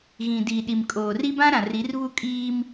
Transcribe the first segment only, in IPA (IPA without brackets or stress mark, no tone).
ɣ